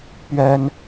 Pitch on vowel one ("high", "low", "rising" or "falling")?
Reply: high